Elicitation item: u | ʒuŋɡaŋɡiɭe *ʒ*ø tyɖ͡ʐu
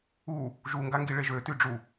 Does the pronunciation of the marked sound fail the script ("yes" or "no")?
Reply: no